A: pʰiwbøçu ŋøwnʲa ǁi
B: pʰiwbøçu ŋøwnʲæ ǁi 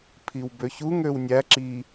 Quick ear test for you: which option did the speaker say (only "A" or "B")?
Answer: B